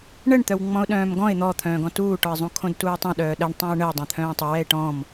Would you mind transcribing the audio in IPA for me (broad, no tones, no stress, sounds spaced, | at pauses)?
ɳ ə ɳ t̪ œ w ŋ͡m ɔ̃ ʊ̯ ɗ œ̃ː m ɡ ɔ̃ ɪ̯ n̪ ɔ t̪ʰ œ̃ː ɡ ɔ̃ t uː ʈ ɔ ɪ̯ zˤ ũ kʰ õ d t uː tˤ œ̃ ɗ œː ɗ ə ɳ tˤ ẽ ʊ̯ ɳ ə w dˤ œ̃ t̪ʰ œ̃ː tˤ o w ɛ ɪ̯ ʈ ɔ̃ m